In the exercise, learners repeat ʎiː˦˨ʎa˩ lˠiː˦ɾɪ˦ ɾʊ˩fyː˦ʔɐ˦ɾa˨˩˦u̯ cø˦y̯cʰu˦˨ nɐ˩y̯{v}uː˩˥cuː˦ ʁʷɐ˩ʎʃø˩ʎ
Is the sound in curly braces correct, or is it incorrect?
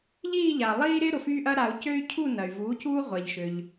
correct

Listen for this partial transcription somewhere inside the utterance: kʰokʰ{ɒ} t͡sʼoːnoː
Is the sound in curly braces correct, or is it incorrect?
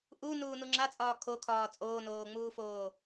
incorrect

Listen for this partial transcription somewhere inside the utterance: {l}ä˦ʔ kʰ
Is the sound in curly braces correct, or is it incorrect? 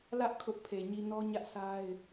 correct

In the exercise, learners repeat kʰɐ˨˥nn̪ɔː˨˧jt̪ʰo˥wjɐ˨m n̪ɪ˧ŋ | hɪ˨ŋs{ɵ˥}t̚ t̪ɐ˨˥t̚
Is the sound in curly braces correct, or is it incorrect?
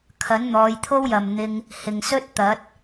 correct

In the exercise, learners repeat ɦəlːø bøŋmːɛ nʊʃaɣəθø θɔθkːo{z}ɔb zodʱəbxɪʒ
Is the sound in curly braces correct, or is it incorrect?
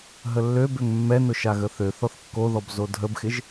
incorrect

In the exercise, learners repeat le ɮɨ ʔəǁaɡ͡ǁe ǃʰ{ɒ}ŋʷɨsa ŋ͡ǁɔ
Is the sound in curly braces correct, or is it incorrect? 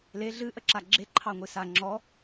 incorrect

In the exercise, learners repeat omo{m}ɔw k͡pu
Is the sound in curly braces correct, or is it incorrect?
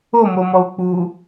correct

